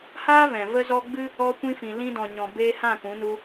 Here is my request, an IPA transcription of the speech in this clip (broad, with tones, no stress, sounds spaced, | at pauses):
h aː˦ v ɛ̃˨ v ə˧ z ɔ˧ ɡ͡b ɨ˦ | ɔ˧ kʷ ĩ˧ f ĩ˨ l ĩ˧ d ɔ̃˨ ɲ ɔ̃˨ b eː˧ h ã˦˨ k ũ˨˦ n u˧